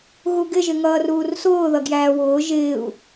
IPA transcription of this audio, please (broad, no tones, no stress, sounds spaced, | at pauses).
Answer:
ɣ u ɡ ɪ ʒ ɪ ŋ ʌː r uː r s ʊː ð ʌ ɡ j æː w ʊː ʒ ɪː u̯